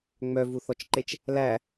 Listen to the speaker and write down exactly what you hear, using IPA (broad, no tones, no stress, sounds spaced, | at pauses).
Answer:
ŋ͡m œ v u θ ɔ t͡ʃ ǃ e t͡ʃ | l æ